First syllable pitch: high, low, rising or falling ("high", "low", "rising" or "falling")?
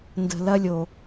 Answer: low